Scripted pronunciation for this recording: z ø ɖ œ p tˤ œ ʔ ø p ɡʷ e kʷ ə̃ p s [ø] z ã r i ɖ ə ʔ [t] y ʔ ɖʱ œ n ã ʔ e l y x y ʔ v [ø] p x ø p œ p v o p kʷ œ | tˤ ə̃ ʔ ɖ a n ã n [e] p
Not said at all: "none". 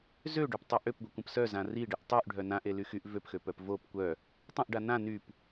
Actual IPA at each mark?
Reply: œ, tˤ, ø, y

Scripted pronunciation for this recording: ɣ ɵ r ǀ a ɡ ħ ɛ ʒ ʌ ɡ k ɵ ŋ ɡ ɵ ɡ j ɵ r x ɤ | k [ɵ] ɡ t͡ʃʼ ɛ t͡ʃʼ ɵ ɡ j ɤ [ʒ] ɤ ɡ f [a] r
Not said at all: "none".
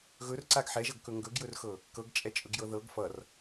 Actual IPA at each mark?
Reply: ɤ, ð, ʌ

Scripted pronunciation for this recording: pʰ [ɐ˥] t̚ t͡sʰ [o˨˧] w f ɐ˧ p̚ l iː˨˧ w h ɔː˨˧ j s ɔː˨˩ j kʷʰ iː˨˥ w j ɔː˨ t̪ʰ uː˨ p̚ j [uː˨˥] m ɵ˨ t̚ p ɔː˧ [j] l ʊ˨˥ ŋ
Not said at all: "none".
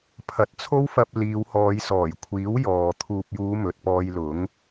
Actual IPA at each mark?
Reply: ɐ˨˥, o˥, uː˨˧, j

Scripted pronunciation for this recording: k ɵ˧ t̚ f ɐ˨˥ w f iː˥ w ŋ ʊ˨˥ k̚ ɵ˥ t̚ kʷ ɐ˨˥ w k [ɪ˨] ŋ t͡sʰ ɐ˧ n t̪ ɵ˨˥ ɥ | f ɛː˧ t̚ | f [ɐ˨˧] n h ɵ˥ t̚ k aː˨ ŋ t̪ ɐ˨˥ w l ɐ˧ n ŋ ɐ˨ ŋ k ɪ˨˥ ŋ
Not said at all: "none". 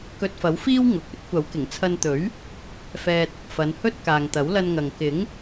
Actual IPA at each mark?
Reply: ɪ˨˩, ɐ˨˧

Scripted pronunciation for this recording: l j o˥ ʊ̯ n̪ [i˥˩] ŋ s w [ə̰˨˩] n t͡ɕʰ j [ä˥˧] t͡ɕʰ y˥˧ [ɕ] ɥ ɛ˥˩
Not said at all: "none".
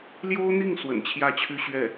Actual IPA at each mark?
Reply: i˥˩, ə̰˨˩, ä˥˧, ɕ

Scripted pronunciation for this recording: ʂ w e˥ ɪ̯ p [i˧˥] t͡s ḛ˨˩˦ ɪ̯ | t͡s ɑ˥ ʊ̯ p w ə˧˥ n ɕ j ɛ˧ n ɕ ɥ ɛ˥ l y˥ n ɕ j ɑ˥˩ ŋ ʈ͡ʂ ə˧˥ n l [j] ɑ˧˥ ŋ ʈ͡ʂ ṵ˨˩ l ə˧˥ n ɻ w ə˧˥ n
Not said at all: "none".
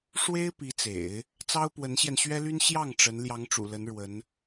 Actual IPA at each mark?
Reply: i˧˥, j

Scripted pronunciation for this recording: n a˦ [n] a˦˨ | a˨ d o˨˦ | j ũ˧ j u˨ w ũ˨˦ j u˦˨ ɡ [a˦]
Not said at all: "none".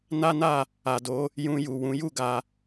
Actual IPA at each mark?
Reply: n, a˧

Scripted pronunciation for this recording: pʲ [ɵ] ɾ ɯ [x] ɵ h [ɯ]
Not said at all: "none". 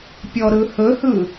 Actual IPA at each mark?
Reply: ɔ, h, ɯ

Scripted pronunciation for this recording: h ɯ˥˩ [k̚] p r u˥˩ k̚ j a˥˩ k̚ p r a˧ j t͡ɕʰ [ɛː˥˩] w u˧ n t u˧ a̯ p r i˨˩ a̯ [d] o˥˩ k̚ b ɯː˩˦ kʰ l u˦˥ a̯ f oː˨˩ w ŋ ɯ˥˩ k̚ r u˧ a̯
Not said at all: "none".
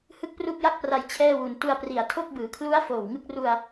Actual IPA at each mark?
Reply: k̚, ɛː˥˩, tʰ

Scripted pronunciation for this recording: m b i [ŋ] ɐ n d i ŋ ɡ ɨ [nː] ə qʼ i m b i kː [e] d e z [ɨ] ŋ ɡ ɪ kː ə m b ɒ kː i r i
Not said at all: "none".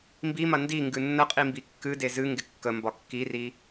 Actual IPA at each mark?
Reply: m, nː, ɨ, ɨ

